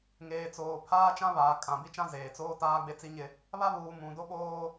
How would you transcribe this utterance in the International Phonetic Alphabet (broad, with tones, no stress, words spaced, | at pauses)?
ŋeː˨t͡soː˨pʰaː˦ t͡ʃã˦βaː˨ kʼã˨ bi˦t͡ʃã˦ zeː˨t͡soː˦ taː˦ɡ͡be˦t͡si˦ɲɪ˦ | βa˦βuː˨ mũ˨do˦ ɓoː˦